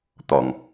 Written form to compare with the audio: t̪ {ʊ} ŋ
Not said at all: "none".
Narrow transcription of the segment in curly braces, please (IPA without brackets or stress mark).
ɔ